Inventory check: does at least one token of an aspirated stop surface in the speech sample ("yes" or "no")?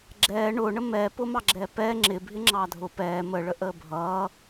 no